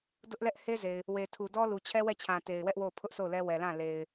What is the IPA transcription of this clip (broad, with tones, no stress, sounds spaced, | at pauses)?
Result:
d ʊ˦ ʔ l ɛ˦ ʔ h e˦ z e˨ ɪ̯ | w e˨ tʰ u˨ d ɔ˦ l u˨ t͡ɕʰ ɛ˦ w ɛ˦˨ t͡ɕʰ ã˨ t e˨ ɪ̯ w ɛ˦ ʔ w o˦˨ ʊ̯ pʰ ʊ˦ ʔ s o˦˨ ʊ̯ l ɛ˦ w ɛ˨ l ã˦˨ l e˨ ɪ̯